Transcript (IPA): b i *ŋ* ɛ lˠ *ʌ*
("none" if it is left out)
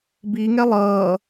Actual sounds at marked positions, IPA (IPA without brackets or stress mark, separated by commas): ŋ, ʌː